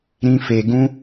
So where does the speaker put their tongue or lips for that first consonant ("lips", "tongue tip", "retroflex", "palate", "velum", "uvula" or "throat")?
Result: tongue tip